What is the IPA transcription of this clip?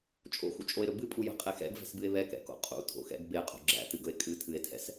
t͡ʃʼ o̰ x ṵ t͡ʃʼ o e̯ ɾ ɵ b ɨ pʼ u j ɛ̤ qʼ e x ɛ̰ ɡ v ɛ̤ s b ɨ e̯ β ɛ k ɛ̰ k o̰ qʼ ṵ tʰ o̰ x ɛ̰ ɡ b e qʼ o̤ ɡ͡ǁ æ̰ t ɨ ɡ ɵ e̯ kʼ ɨ tʰ ɨ e̯ tʰ ɛ̰ s

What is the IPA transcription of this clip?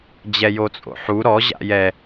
d͡ʑ ɛ j o t͡sʼ o̰ ħ u ɾ ɔ ʑ a̰ j ɛ

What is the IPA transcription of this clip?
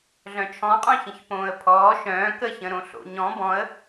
ɮ œ̃ t͡ʃʰ ɔ̃ qʼ œ̃ ç ə̃ ç p õː ə̯ pʰ ɔː ʃ œ̃ː k ə ç ə̃ ɾ õ ɬ o̰ ɲ ɔ̃ b ɔ̃ ə̯

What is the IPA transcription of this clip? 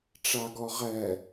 ʈ͡ʂ a ɡ ɔ ʁ ɛ

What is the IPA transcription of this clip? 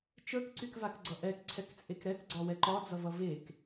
t͡ʃ ə˞ k ǀ y k v a k ɡ͡ǀ ʌ ʔ ɛ k ǀʰ ɛ k t͡sʼ e k ɾ ɛ k ɡ͡ǀ ɒ w ɛ ǃ ɒ d͡z ʌ v ʌ v e k

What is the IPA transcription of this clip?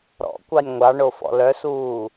ɾ ɔ̰ kʷ ɑ nʲ ŋʷ ɑ ɳ o f ɔ̰ l œ s uː

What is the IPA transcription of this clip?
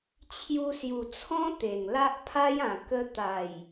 t͡ɕʰ j u˧ s j u˨˩ t͡sʰ ɔ̃˦ t̪ e˨˩ ŋ l a˦ ʔ pʰ a˦ j ã˨˩ k ə˧ t̪ a˨˩ j

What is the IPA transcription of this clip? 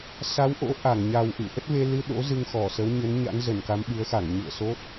s a˨˦ w ʔ o̰˧˥ ʔ a˧˩ ŋ ɲ a˨˩ w ʔ ɨ̰˧˨ ʔ ə˦˥ t̚ v e˧ l ɨ˧ ɗ o̰˧˥ z ɨ˧ ŋ x ɔ˧˩ s ə˨˦ w ɲ ə˨˦ n ɲ a̰˧˥ n z ə˧˩ n k a˨˦ m ɓ ɨ˨˦ ə̯ x a˧˩ ŋ ɲ ṵ˧˨ ə̯ s o˦˥ t̚

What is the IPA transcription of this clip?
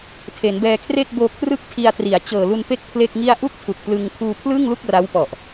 tʰ e˩˦ n b ɛː˧ kʰ r e˥˩ k̚ b oː˧ kʰ r ɯ˥˩ k̚ tʰ i˧ a̯ t r i˩˦ a̯ t͡ɕ ɤː˨˩ l u˧ n p e˥˩ k̚ pʰ l e˥˩ k̚ ŋ i˥˩ a̯ ʔ u˥˩ k̚ tʰ u˨˩ k̚ p l ɯ˧ ŋ pʰ uː˧ pʰ l ɯː˥˩ ŋ l u˥˩ k̚ r a˦˥ w p ɔ˨˩ ʔ

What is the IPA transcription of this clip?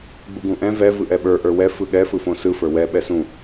ɡ͡b u ɡ ũ ʔ ɛ̃ v ɛ v ɯ ʔ ɛ ɓ ə˞ ʔ ə˞ w ɛ f ɯ ɠ ɛ f ɯ f õ s ɯ f ə˞ w ɛ ɓ ɛ s ũ

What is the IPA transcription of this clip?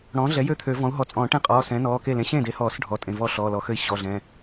ɽ ɔ̃ː˩˥ ɮ ɛ˩˥ j ø˥˩ t̪ʰ ø˨˩˦ v ɔ̃˩˥ u̯ ɦ ɔ˩˥ t͡sʼ ɔ̃ː˨˩˦ ʈ ẽ˥˩ qʼ ɔː˩˧˩ s ɛ̃˩˥ n ɔː˩˧˩ k e˥˩ l ẽ˩˥ ɕ ẽː˥˩ d e˩˥ h ɔː˨˩˦ s ɖʱ ɔ˩˧˩ tʼ ẽ˩˧˩ v ɔ˥˩ ɬ ɔː˩˧˩ l ɔ˩˥ x ø˥˩ i̯ ɕ ɔ˩˧˩ ɮ ɛ̃˩˧˩

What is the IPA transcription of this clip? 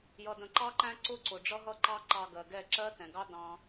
j ʌ˨ d ə̃˨ ǃ ɑ˦ ǃ æ̃˦ ǀ ʊ˦ ǀ ʊ˨ ɖ͡ʐ ʌ˦ ɦ ʌ˦ ǃ ɑ˦ ǃ ɑ˧ ɡ ɜ˨ ɡ ɛ˦˨ ǁ ɜ˦ t ɛ̃˨ ɡ ɑ˦ d ɑ̃˧

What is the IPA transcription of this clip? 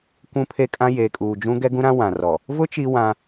kʷ ũ˦ pʰ e˦ kʼ ã˦ j eː˨ kʼ uː˨ d͡ʒ ũ˦ ɡ ɛ˦ ɡ ũ˦ ɾ ã˦ w ã˨ r ɔ˨ | v ʊ˦ t͡ʃ i˦ w ã˦

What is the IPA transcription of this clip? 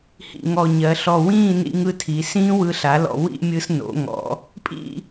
h ḭ˧˩ ŋ ɔ˧˩ ɲ ɜ˩˧ ɬ ɔ˧˩ w ĩː˥˧ n ḭ˧ ŋ ɯ˧ tʰ i˩˧ s ĩː˥ w ɯ˧ ɬ a˩˧ l ɔ̰˧˩ w ḭ˥˧ mʲ ɯ˧ s n o̰˩˧ ŋ ɔ̰˩˧ | pʼ ḭ˥˧

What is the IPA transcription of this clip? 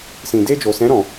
s ĩ˨ d e˧ d͡ʒ o˨ s ɛ̃˨˦ ɾ ɔ̃˧

